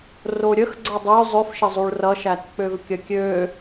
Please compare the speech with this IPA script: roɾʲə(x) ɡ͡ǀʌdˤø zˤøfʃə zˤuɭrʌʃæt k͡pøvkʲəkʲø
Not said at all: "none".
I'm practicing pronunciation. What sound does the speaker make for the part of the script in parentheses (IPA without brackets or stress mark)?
x